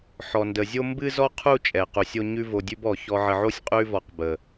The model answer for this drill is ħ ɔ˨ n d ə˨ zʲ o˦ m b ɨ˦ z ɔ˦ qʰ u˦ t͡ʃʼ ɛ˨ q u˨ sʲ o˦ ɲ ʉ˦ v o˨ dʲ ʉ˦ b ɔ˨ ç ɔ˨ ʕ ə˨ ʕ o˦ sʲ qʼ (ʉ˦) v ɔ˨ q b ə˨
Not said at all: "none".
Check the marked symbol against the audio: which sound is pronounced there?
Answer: ʉ˦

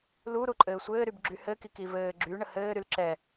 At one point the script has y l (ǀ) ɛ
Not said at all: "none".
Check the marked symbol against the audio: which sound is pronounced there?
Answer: ǁ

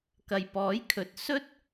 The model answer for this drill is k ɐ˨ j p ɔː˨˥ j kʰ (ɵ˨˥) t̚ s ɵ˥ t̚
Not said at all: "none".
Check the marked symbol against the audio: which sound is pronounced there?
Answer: ɵ˨˥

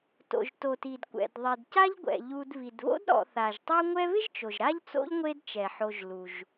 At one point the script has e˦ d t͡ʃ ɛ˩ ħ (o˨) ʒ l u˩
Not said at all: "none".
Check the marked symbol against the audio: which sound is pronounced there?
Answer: o˨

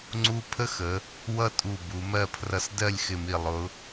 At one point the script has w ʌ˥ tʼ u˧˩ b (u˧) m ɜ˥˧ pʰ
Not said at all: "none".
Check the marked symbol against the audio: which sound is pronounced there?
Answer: u˩˧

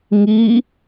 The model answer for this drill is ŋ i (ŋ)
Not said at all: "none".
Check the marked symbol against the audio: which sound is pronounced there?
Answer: none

